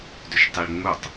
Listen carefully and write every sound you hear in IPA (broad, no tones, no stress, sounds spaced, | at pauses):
d ʏ ʃ tˤ i ɭ ŋ͡m u tˤ